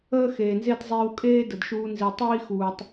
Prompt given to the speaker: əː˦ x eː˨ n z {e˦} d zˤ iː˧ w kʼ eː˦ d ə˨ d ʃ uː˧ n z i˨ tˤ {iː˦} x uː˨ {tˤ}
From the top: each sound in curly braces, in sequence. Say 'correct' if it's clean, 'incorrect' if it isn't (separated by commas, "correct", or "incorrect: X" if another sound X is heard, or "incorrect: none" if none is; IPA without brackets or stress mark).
correct, correct, correct